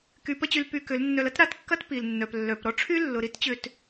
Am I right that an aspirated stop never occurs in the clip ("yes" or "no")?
no